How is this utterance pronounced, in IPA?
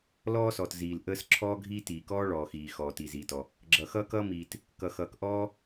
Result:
l ɔː˥ s ɔː˩ t z iː˩ l ʔ əː˥ s ǁʰ ɔː˥ ɡʱ iː˥ t iː˩ k ɔː˥ ɭ ɔː˩ x iː˩ x ɔː˩ t i˩ z iː˩ t ɔ˩ | ɡ͡ǁ ʌ˩ x ʌː˥ k ʌː˥ m iː˩ t | k ʌ˩ x ʌː˩ k ʔ ɔː˥

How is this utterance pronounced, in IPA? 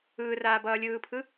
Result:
ɯː r aː b ʌː lʲ ɯː pʰ ɯ

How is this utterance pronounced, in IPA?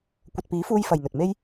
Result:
kʷ ɐ˨ t̚ p iː˨˥ f uː˧ j f ɐ˨ j n̪ ɵ˨ t̚ m e˥ j

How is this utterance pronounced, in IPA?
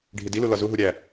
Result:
ɖʱ i d i l u l ɒ z u ɦ u ɾʲ æ

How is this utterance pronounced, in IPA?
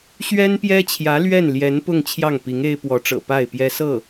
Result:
ɕ ɥ ɛ˥ n p j ɛ˥ t͡ɕʰ j ä˧˥ l ɥ ɛ˥˩ n l j ɛ˧˥ n p ʊ˥˧ ŋ t͡ɕʰ j ɑ˥˩ ŋ p i˧˥ ŋ e˥ ɪ̯ p w ɔ˧˥ ʈ͡ʂ ɤ̰˨˩ p a˥˩ ɪ̯ p j ɛ˥ s ɤ˥˩

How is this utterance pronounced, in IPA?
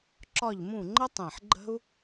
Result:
ǁ ɒ˦˨ ʎ m ũ˦˨ ŋ͡ǃ ə˥ tˤ ẽ˨˩ ħ ɡ͡ǃ ə̤˥ u̯

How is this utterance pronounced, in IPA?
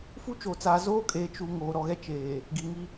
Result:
f u˦ t͡ʃ oː˨ t͡s aː˨ z oː˦ kʼ eː˨ t͡ʃ u˨ ŋ oː˨ ɾ ɔ˨ ɣ ɛ˦ t͡ʃ eː˨ | ɡ i˨ ŋ i˦

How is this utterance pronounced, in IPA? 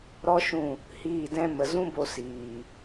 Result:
ɾ ɔ˦ ʃ ũ˦˨ | h iː˦˨ d ɛ̃˦ m ə˨ z ũ˦ b o˧ s iː˨

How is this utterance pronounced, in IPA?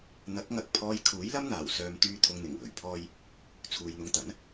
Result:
n̪ ɐ˨˥ k̚ ŋ ɐ˨˥ k̚ pʰ ɔː˧ j kʰ uː˨˥ j l ɐ˥ m n̪ aː˨˩ w s œː˧ m t̪ yː˧ t̪ʰ ʊ˨˧ ŋ n̪ ɪ˨˩ ŋ w ɵ˨˩ ɥ pʰ ɔː˥ j | t͡sʰ uː˨ j n̪ ʊ˧ ŋ t̪ ɐ˨˥ n

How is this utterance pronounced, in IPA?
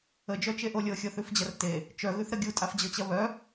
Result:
ə d͡ʒ œ t͡ʃ e ʔ o lʲ ɤ xʲ ɤ θ ʉ f d͡ʑ ɐ r t e | t͡ʃ œ ɣ ʉ θ ɾ ə ɡʲ u tʼ a f d͡ʑ ɤ t͡ɕ ɐ β œ

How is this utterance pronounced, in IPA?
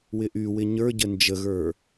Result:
w ɪ ʔ y w ɪ ɲ ə˞ ɟ ə n d͡ʒ ə ɣ ə˞

